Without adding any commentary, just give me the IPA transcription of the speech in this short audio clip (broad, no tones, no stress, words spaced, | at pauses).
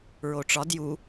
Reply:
ɹoʈ͡ʂɒd ju